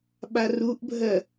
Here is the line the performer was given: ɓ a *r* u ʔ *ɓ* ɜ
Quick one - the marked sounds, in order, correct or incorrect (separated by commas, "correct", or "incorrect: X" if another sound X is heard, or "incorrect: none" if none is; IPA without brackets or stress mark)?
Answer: correct, incorrect: bʱ